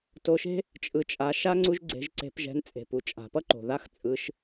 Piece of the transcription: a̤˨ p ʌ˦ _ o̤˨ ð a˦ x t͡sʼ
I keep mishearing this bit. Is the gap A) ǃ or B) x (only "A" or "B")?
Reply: A